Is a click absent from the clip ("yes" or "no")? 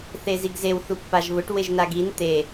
yes